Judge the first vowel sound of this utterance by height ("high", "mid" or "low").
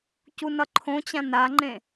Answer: high